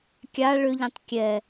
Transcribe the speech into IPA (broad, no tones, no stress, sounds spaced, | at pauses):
kʲ a ɭ ʏ ʎ ẽ tˤ kʲ ɛ